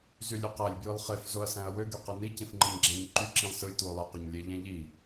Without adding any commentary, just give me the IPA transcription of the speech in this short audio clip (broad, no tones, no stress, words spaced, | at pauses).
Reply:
zylʲøqælʲ bjɯlˠχef zoɐ̯sæ̃ɐ̯wø ɡyqɯni cĩfŋ͡ǃɯɲɡ͡ǁæ̃ɲǃy ǁĩlˠsɯlʲ twolˠe qøɲlʲe ʎæ̃ʎi